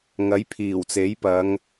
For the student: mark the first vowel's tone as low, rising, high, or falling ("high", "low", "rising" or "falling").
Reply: rising